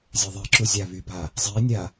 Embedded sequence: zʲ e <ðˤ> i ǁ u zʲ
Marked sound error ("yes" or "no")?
no